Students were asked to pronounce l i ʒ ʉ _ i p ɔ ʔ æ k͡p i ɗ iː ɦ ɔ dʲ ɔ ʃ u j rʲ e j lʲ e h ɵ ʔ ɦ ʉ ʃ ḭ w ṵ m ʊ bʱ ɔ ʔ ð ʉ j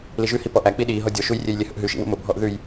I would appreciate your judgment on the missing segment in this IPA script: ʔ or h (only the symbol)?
h